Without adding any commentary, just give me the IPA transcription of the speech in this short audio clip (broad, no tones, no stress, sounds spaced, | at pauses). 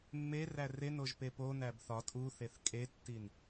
mː e r æ r e n o ʒ p e p o n æ b θ ɒ tʼ u θ e θ kʼ e tː i n